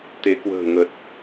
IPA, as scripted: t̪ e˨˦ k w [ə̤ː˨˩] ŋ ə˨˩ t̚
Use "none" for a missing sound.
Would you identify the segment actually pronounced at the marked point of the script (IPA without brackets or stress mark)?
ə̤ː˨˩